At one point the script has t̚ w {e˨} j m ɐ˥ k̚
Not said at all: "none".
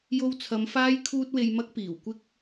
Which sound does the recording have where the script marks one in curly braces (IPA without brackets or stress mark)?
e˧